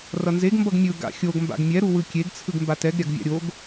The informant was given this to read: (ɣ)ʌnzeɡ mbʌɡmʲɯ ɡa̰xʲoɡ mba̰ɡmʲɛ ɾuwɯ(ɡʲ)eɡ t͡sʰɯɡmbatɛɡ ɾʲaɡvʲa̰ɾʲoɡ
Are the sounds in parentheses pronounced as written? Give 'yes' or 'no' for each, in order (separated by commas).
no, no